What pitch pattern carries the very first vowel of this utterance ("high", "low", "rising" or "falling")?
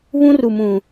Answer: high